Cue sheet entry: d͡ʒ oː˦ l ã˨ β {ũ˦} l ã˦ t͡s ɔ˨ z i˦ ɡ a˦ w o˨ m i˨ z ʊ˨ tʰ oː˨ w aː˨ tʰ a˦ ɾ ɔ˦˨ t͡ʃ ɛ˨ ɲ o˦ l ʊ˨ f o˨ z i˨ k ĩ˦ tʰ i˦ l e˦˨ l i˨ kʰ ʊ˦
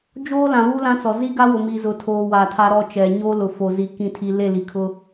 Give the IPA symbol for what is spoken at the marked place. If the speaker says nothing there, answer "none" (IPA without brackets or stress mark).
u˦